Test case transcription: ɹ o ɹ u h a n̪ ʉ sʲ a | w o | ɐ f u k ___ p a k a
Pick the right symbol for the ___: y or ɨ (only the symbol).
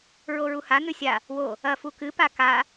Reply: ɨ